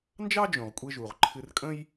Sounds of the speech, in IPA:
n d͡ʒ ɑ˥ d͡ʒ õ˩ ʁ kʷʼ e˧ ʒ u˩ ʁ ǃʰ ɨ˧ r kʼ ə̃˥ j

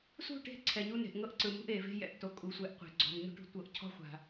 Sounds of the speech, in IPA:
s ṳ˦˨ ʈ e̤˦˨ ǀʰ ɛ˨ ɲ u˦ n e̤˨ ʔ ŋ ɤ˦ ʔ ǀ ɯ˨ m ṳ˦ ʔ e˨ v e̤˦ j ɛ̰˨ ʔ t o˨ kʼ u˨ sʷ ɛ˨ ʔ qʷ e̤˨ ɡ͡ǀ ɔ̤˨ m ɲ ṳ˦ ʈ ṳ˦ tʷ ɤ˨ ʔ cʰ ɔ̤˦ χʷ a̤˨

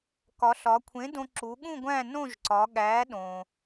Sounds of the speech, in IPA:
k ɒ˩˧ ɬ ɒ˩˧ kʷʰ ẽ˨˥ d õ˧ ǁ u˩˧ ɠ ũ˥˧ ɡʷ æ̃˥˧ n õ˥˧ ʒ ǀ ɒ˩˧ ɠ æ˨˥ ɗ õ˩

